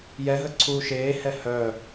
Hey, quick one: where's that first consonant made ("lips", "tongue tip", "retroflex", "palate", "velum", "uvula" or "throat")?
palate